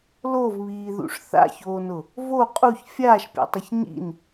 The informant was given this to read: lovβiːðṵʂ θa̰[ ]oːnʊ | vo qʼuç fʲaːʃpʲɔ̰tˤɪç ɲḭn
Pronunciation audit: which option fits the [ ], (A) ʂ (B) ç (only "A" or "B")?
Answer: B